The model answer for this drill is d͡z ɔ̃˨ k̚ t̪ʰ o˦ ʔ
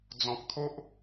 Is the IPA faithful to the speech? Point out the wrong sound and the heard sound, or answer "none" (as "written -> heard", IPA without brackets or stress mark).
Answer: none